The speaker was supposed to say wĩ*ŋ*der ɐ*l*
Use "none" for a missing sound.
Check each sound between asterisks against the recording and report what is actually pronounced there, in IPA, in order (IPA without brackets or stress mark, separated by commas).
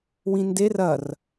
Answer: n, r